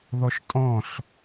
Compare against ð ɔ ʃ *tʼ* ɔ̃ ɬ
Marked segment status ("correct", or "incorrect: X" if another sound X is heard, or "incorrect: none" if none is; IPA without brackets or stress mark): correct